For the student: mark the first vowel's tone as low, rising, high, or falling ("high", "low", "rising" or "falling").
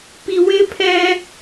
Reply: low